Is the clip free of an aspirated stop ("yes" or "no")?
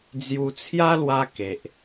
no